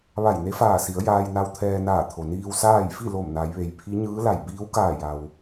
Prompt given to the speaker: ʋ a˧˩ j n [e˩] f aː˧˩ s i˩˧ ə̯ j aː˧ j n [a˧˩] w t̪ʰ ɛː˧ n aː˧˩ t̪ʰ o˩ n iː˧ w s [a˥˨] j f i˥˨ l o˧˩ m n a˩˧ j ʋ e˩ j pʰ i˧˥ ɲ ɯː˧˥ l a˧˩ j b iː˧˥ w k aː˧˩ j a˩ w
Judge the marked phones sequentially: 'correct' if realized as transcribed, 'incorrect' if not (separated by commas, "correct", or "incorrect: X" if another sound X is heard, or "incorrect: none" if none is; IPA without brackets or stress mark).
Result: incorrect: e˧˥, incorrect: a˧, incorrect: aː˥˨